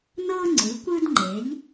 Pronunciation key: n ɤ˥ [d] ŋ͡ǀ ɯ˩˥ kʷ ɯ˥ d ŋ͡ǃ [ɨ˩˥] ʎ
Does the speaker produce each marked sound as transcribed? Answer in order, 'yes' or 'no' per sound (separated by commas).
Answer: no, no